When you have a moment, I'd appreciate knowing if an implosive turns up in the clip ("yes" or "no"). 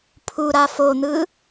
no